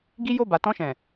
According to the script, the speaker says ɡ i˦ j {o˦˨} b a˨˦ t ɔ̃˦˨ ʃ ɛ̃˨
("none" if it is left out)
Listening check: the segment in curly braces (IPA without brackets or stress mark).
o˦˨